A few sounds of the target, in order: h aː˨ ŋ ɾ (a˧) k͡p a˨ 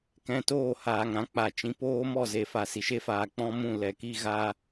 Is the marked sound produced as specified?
no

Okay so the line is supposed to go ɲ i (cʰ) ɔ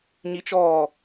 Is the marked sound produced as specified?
no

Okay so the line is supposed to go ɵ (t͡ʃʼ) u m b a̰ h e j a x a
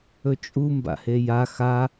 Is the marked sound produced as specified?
yes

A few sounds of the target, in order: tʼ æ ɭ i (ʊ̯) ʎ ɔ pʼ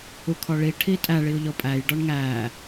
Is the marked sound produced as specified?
yes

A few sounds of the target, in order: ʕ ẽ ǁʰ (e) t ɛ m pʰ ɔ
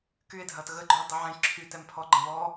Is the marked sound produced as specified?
no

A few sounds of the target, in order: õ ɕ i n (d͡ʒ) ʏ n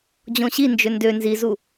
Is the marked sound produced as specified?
yes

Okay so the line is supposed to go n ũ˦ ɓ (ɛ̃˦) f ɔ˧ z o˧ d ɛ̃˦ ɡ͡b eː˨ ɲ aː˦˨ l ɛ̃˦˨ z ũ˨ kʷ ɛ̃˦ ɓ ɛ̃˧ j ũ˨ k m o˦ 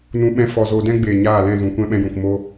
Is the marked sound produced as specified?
yes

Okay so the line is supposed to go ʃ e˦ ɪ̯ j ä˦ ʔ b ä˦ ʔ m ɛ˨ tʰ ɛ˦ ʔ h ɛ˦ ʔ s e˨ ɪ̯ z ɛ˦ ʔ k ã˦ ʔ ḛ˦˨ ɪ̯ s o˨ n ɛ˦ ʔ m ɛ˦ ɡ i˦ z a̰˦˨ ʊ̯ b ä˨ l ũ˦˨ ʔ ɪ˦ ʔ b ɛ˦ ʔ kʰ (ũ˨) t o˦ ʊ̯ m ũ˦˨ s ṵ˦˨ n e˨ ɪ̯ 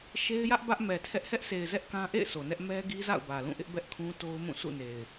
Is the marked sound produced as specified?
no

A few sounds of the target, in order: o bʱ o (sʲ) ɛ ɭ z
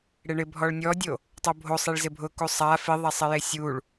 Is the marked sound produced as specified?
no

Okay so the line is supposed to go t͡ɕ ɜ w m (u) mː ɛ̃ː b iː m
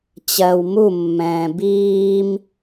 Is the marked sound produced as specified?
yes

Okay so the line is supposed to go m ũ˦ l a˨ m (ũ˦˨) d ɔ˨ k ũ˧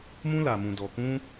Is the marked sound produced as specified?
no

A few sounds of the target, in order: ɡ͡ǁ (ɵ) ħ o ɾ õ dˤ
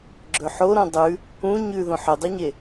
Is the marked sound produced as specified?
yes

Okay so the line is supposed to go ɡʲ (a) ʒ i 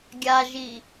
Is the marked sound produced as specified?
yes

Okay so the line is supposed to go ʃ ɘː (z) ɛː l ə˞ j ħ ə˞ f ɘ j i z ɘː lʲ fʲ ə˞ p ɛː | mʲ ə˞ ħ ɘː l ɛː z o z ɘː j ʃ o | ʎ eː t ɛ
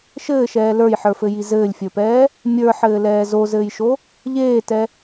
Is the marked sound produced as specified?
no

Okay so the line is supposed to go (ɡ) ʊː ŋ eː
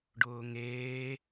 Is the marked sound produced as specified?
no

